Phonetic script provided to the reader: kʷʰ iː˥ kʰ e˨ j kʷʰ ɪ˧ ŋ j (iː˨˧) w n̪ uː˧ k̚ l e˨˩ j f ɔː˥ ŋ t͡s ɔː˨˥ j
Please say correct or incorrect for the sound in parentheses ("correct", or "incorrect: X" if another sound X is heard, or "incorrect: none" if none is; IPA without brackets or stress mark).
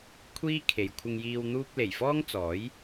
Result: incorrect: iː˧